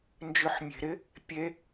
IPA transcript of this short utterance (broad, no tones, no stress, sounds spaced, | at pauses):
n d͡ʒ ʏ ħ mʲ e̤ ɾ ɪ | pʲ e